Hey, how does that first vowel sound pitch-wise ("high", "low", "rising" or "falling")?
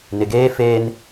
low